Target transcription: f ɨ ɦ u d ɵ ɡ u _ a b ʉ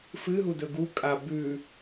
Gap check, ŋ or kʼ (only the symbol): kʼ